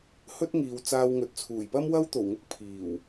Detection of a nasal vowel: absent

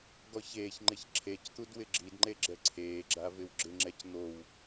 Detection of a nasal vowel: absent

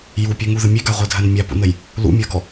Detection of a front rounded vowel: present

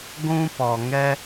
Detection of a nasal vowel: present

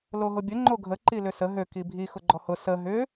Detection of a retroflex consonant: absent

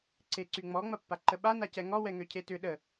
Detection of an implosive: present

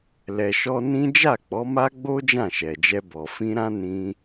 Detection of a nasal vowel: present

